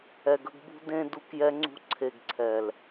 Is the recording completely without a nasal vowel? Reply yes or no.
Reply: no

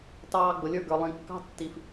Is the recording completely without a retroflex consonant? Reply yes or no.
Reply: yes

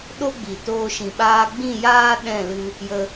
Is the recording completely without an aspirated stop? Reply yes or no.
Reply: yes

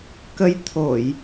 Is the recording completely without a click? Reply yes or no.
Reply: yes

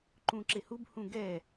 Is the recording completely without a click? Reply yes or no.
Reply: no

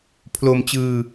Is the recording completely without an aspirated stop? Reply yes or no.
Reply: no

